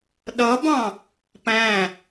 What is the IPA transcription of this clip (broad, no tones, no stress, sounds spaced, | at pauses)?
ɗ ʌ b ɑ̃ | p æ̃